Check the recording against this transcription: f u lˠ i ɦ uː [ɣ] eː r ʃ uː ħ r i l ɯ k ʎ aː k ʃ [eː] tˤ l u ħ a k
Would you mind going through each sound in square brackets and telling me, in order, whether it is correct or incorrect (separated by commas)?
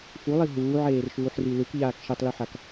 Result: incorrect, incorrect